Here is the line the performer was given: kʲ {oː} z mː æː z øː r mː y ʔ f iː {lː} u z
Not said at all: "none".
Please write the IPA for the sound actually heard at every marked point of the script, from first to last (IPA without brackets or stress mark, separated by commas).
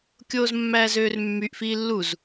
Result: oː, lː